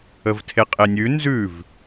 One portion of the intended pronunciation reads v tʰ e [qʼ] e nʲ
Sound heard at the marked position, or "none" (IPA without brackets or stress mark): qʼ